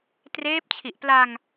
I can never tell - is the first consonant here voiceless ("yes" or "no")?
yes